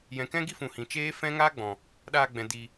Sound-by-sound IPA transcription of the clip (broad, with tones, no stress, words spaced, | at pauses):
jɛ̃˨kɛ̃˦ɡi˦fũ˨ hĩ˨t͡ʃeː˦ fɛ̃˦ŋaː˦ɡ͡bɔ̃˨ | ɗaː˧ɡ͡bɛ̃˨ di˨